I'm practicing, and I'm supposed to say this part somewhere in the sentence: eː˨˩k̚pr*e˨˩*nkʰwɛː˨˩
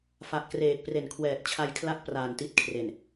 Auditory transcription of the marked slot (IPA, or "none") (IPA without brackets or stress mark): e˨˩